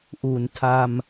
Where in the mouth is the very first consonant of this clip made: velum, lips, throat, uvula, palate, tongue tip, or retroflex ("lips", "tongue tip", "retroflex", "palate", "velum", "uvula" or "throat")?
throat